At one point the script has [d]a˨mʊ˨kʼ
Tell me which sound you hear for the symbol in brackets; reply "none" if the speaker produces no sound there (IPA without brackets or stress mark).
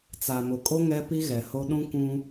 t͡s